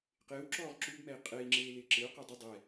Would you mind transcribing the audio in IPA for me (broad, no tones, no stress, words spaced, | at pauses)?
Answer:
qɪːwǁɔːʁ ǁubmɛi̯ qʼei̯ŋ͡ǁeːlɪː ǁɪu̯qe dˤɪ dˤɛ